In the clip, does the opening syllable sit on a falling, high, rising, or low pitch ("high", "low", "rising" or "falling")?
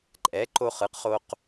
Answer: rising